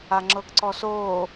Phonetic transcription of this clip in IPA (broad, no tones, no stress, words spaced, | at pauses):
aŋ͡ǁɤɡǀɔsoː